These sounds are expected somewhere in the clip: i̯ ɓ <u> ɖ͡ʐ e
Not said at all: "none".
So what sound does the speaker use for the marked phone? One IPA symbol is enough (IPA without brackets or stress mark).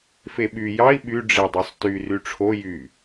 y